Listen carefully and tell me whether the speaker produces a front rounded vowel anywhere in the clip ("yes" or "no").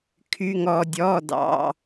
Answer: yes